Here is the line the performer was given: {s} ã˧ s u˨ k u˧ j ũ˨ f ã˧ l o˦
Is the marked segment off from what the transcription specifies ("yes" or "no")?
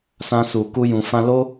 no